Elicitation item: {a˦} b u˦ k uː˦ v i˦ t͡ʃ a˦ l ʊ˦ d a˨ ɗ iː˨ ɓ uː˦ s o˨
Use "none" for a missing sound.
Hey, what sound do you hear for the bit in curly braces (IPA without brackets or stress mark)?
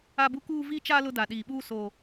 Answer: a˦